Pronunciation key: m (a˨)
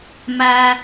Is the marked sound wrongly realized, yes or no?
yes